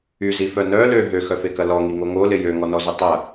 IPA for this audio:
y z i f œ n œ l ø ɦ ø x œ f e k ɐ l ɔ ŋ i ŋ o ŋ o l ɪ j ø ŋ ɔ n ɔ z ʏ tˤ ɐ

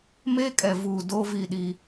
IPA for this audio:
m eː˦ kʼ ɛ˨ v uː˨ d oː˦ v i˦˨ ɗ i˦

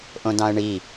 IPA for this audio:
ʔ õ d ɑ̃ ə̯ ɳ i

